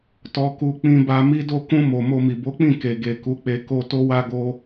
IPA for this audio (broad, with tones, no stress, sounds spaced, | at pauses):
t ɔ˨ k u˨ k͡p ĩ˧ b a˧ m i˧ d o˧ k ũ˧ m o˨ m o˧ m i˨ b o˨˦ k͡p ĩ˦˨ k e˨ ɡ e˨ k u˨˦ k͡p e˧ k o˧ t o˦ w a˦ ɡ o˦